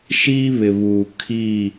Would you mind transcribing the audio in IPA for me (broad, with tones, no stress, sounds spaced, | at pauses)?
ʃ iː˦ β ɪ˨ β uː˨ kʰ i˦˨